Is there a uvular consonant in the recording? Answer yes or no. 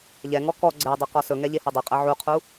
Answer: yes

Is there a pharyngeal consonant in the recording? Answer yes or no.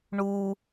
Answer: no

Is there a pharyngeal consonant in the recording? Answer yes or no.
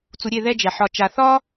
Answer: yes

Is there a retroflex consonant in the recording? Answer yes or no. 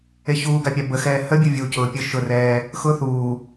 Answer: no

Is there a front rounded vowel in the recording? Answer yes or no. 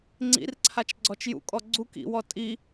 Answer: no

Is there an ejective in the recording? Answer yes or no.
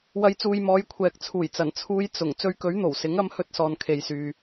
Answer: no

